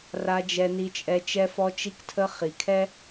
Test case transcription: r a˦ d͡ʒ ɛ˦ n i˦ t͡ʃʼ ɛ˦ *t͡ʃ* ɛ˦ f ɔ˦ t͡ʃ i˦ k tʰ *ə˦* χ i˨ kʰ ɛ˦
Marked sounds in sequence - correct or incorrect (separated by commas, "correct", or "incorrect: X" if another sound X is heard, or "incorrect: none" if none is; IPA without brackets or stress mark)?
correct, correct